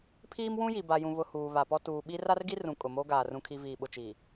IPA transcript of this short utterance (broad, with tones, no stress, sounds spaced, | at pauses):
pʰ iː˦ m w ũ˦ j i˨ b a˨ j ũ˨ β ʊ˨ h uː˨ β a˨ p ɔ˦ t uː˨ ɓ i˦ r a˦ r ɡ i˦ r ũ˨ kʼ ʊ˨ m o˦ ɡ aː˨ r ũ˨ kʰ i˨ v iː˨ ɓ ʊ˨ t͡ʃ iː˨